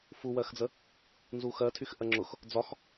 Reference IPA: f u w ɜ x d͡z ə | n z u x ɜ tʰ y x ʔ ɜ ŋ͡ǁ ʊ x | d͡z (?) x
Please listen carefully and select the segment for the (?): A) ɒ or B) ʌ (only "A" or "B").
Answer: A